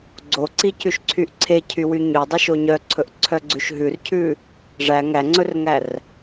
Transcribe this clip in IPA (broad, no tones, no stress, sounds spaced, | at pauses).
ɡ͡ǀ o ǀ i c ʉ ʃ ǀʰ y ʔ ǀʰ e cʰ y w y ɲ ɵ dˤ œ ʃ o ɲ œ ǀʰ ɵ ʔ ǀʰ œ ɡ͡ǀ ʉ ʃ ɦ ʉ r cʰ ʉ | ʐ æ ŋ æ ŋ͡ǀ ɵ r ŋ æ r